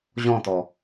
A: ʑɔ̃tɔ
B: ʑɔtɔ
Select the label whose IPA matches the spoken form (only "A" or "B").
A